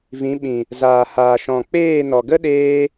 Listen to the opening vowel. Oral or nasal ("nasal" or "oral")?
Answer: nasal